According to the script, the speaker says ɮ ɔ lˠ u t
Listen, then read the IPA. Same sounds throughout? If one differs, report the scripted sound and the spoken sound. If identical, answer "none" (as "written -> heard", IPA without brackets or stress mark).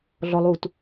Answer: none